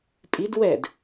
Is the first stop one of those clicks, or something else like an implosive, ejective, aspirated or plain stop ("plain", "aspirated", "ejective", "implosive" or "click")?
ejective